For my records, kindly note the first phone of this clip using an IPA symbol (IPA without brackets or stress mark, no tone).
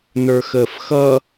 n